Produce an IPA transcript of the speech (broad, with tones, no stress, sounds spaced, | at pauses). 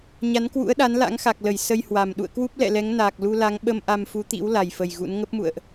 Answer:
ɲ a˨˦ n k w ṵ˧˥ ə̯ ɗ a˨˦ n l a̰˧˥ ŋ x a˨˩ k̚ l ə˧˩ j s ə˧ j h w a˨˩ m ɗ ṵ˧˨ ə̯ k w u˦˥ p̚ l ɛ̰˧˨ l ɛ˨˦ ŋ n aː˨˩ k̚ l u˧ l a˨˦ ŋ ɓ ə˧ m ʔ a˧ m f u˨˦ t̪ ḭ˧˥ w l a˨˩ j f ə˨˩ j ɣ ṵ˧˥ n ŋ ə˦˥ p̚ m ṵ˧˨ ə̯ ʔ